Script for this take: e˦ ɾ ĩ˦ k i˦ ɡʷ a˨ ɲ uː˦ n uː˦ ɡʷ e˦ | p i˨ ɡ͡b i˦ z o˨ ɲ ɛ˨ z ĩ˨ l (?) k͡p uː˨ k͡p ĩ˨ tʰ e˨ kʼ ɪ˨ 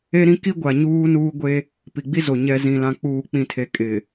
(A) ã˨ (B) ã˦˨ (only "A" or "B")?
A